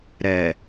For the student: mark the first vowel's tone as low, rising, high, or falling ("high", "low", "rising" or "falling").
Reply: low